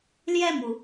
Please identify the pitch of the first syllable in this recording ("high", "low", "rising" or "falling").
falling